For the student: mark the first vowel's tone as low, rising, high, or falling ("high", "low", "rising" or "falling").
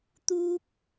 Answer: high